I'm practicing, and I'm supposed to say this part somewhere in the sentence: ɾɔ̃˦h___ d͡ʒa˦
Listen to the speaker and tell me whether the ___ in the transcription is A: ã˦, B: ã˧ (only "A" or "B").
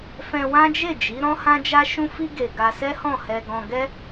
A